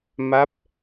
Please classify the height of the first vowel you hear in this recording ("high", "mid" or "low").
low